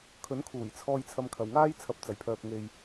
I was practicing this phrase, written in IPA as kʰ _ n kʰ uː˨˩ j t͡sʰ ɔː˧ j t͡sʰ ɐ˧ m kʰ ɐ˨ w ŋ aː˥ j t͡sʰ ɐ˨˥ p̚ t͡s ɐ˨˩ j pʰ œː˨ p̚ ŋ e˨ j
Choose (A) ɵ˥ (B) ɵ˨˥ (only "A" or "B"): B